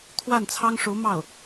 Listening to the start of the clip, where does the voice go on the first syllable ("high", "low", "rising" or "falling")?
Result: falling